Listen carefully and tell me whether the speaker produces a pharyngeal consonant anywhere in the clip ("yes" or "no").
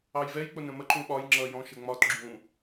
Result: no